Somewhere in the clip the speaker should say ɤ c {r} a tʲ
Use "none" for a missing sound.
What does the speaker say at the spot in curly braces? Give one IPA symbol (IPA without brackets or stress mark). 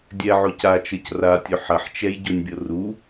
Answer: r